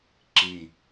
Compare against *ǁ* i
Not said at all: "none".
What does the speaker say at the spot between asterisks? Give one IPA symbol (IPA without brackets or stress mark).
ǁ